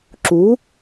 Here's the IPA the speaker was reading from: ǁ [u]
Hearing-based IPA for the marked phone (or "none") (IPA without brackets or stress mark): u